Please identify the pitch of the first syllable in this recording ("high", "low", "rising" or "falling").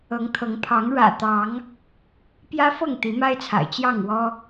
rising